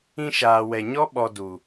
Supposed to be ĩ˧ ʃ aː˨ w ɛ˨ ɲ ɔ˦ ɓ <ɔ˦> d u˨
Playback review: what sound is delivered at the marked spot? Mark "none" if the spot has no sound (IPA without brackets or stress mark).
ɔ˧